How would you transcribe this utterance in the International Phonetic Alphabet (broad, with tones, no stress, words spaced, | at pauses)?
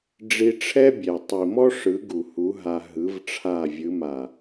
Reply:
ɖ͡ʐi˧ʈ͡ʂʰɛ˦bʲɛ˨ tˤi˨mɔ˦ ʂɯ˨˦ɡu˨ hu˨˦ɦa˧ ɦɯ˨˦vʈ͡ʂʰa˦˨vʲɯ˨˦ ma˨